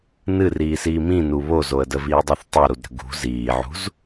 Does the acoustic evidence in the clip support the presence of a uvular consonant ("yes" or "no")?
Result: no